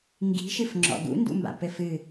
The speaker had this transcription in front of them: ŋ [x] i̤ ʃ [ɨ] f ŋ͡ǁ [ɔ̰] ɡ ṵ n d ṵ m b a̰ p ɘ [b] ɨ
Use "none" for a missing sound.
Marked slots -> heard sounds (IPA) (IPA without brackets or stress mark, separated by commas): ɡ, ɨ, ɔ̰, f